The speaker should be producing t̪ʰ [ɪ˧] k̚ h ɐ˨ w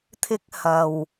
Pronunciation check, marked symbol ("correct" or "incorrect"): incorrect